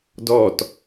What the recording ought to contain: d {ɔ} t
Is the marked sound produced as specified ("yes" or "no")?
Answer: yes